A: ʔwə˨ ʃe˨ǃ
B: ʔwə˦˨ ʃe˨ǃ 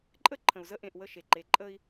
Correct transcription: B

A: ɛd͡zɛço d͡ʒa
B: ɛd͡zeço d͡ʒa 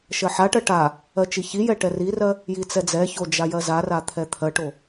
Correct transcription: A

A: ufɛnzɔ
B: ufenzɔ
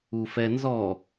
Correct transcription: A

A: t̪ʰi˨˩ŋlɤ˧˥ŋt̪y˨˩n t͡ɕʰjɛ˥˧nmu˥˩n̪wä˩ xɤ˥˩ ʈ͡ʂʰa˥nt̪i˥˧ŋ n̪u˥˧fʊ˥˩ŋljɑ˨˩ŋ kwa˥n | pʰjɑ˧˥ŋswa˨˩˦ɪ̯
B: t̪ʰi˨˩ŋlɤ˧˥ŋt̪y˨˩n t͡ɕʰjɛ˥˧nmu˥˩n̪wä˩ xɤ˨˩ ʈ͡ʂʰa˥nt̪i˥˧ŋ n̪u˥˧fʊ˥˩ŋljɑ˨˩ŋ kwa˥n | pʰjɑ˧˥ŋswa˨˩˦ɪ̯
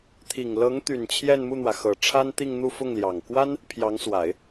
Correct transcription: B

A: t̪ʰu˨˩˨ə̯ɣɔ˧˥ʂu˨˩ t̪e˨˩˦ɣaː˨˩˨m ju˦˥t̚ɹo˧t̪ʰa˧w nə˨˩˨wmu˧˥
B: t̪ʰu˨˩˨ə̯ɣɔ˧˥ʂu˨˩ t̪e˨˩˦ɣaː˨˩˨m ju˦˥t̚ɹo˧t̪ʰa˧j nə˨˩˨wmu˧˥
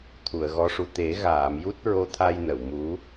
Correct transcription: B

